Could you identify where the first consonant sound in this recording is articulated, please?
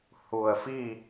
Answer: glottal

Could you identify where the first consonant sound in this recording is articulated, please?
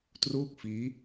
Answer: alveolar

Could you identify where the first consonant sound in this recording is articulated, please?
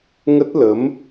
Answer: velar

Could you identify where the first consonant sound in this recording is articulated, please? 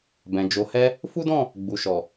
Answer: labial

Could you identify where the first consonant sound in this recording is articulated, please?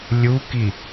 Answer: alveolar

